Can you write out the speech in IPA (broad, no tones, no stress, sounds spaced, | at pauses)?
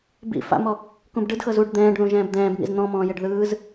b ḭ f a̰ m ɔ | k ũ b ɖ ɯ d x ɤ z u ɖ d̪ ɛ̃ː ɖ ð ũ ʒ ɛ̃ː b d̪ ɛ̃ː b ŋ ḭ z n̪ ɔ̃ m ɔ̃ː j e ɖ ð ɯː z